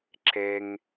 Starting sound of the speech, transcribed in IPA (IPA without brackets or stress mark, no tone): ǁ